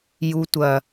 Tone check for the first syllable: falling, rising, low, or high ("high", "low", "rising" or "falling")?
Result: low